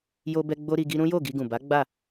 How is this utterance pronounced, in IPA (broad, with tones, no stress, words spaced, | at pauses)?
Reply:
jo˧bɛ˧ ɡ͡bo˦ɾi˧ɡi˦ ɾũ˦jo˦˨ɡi˧ɡũ˨ ba˨˦ ɡ͡ba˦˨